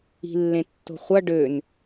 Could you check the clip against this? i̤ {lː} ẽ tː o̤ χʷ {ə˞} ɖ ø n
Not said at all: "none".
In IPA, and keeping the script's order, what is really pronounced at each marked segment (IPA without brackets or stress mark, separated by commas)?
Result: lː, ʌ